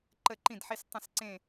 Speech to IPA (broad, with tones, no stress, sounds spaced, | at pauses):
ǃ ə˥˨ ǃ ĩ˥˨ d ħ i˦ s tˤ ə̃˥˨ s ǀ ẽ˥˨